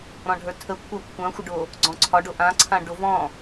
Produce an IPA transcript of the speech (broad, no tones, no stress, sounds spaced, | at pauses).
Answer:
ɾ ɔ̃ ɖʱ ə˞ tʰ ə kʷʰ ɑ kʷʰ ã xʷ ə ɖ o | ɡ͡ǀ ɔ̃ ǀʰ ɒ ɖ o ʔ ã ǀʰ ã ɖ o v ɔ̃